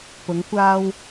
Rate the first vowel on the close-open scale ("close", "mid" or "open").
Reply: close